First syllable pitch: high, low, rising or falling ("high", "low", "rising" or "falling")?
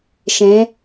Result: rising